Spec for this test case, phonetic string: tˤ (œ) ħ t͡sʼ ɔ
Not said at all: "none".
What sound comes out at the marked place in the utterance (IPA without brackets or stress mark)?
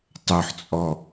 œ